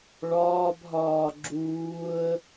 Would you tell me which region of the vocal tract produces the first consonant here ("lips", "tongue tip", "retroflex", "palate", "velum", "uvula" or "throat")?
retroflex